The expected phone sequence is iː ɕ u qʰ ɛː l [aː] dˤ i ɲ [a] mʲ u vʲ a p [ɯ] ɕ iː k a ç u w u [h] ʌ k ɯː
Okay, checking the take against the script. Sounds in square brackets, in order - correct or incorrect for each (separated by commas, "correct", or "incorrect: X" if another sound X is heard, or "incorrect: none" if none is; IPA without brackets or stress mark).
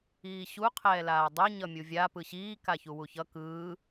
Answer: correct, incorrect: ʌ, correct, incorrect: ç